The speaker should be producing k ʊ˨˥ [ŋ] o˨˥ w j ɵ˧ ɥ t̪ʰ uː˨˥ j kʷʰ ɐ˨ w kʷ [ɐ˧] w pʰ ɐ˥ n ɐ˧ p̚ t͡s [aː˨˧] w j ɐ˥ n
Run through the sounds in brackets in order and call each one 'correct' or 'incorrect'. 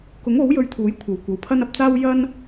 correct, incorrect, incorrect

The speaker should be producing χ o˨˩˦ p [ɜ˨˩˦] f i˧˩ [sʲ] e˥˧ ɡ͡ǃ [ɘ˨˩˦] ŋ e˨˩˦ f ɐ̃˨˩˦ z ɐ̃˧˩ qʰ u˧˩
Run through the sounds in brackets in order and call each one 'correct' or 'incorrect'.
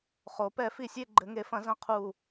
incorrect, correct, correct

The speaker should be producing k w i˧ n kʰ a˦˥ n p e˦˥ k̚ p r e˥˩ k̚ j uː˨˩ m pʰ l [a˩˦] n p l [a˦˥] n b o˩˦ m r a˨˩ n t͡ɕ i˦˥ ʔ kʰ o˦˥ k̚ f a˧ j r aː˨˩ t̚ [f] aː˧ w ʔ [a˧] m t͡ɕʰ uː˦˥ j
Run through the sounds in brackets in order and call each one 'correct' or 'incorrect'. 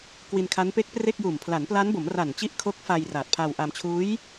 correct, correct, incorrect, correct

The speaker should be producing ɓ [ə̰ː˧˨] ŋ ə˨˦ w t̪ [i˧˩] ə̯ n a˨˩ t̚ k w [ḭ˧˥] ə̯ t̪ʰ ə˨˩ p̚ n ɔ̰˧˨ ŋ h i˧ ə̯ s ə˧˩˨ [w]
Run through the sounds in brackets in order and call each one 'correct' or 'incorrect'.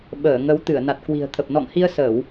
incorrect, incorrect, incorrect, correct

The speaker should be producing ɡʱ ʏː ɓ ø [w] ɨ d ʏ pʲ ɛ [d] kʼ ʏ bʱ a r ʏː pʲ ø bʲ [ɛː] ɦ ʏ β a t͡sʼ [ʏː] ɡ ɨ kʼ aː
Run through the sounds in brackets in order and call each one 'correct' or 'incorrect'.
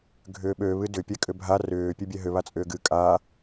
incorrect, incorrect, incorrect, correct

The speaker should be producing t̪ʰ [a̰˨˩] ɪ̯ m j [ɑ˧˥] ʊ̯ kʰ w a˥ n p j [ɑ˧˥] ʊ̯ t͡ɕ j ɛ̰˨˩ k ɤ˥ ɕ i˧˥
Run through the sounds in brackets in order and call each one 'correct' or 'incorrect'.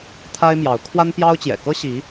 incorrect, correct, incorrect

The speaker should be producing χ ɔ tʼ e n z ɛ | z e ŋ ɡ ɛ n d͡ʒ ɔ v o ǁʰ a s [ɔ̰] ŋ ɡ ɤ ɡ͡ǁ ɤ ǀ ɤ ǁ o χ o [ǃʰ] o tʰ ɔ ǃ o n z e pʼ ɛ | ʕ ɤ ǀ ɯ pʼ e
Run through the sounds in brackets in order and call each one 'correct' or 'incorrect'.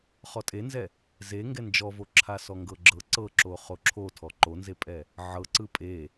incorrect, incorrect

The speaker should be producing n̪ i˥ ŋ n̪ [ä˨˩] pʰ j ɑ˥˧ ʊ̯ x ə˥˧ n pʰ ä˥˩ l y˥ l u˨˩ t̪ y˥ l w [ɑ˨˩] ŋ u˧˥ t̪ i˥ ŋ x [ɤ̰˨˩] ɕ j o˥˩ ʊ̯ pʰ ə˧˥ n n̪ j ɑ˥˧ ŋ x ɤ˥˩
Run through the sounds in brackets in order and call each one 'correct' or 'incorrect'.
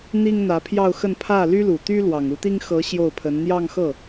incorrect, correct, incorrect

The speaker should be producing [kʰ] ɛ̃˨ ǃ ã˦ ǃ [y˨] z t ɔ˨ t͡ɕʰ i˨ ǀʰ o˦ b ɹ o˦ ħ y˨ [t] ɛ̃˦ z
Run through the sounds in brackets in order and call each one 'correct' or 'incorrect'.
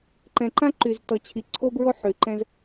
incorrect, correct, incorrect

